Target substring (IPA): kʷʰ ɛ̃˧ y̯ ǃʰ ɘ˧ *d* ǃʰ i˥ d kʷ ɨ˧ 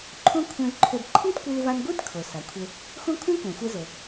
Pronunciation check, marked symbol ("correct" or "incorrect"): correct